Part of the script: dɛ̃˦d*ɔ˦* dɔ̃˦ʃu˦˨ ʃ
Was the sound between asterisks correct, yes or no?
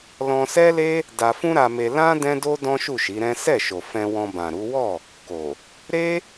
no